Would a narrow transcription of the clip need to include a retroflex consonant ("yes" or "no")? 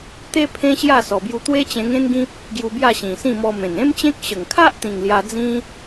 no